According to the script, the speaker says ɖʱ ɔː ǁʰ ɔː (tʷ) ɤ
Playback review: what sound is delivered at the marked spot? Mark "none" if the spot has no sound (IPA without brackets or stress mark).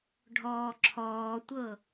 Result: tʷ